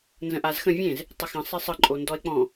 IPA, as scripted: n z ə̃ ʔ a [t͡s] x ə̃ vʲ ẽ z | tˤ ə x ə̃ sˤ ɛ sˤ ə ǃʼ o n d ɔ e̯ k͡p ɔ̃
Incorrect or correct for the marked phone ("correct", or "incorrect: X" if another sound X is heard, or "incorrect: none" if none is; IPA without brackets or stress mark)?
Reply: incorrect: z